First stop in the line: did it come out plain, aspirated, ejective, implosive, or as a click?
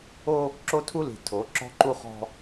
click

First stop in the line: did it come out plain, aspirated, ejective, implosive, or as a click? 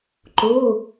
click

